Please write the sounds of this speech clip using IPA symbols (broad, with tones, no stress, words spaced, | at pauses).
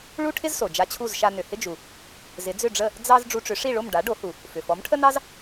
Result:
ɭu˥ʈʰɪ˥zso˩ d͡ʒa˧t͡ɕʰu˥˩zʃa˧ nʏ˩hɪ˥d͡ʒu˩ | zɪ˩˥d͡zʏ˥˩ɖ͡ʐə˥˩ | d͡zɑ˥z ɖ͡ʐu˧ʈ͡ʂʏ˩˥ʂi˥˩ɭo˥˩m ɖa˩˥ɖo˩˥hu˩ | fʏ˩fɔ˩˥mʈʰə˥nɑ˥z